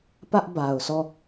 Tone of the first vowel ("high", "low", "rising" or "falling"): high